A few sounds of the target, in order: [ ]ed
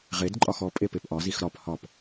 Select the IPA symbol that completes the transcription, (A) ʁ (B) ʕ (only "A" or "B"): A